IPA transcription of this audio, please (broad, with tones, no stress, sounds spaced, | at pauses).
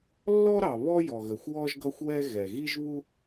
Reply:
lː ɔ˥ ɾ ɑ˩ β ɔ˥ j ɔ˩ ɣ ə˩ xʷ w ɔ˥ ʒ ɡ ʌ˥ xʷ w ɛ˥ ɣ ɛ˩ ɣ i˥ ʒ β u˥